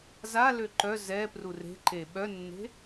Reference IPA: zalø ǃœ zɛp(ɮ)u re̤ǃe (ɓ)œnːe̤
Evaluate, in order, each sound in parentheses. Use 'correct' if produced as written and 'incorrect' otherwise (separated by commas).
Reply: incorrect, correct